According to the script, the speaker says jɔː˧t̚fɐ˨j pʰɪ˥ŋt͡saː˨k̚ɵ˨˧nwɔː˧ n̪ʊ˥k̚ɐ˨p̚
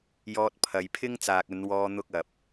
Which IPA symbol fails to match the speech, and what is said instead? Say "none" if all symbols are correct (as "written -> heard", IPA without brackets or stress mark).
f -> pʰ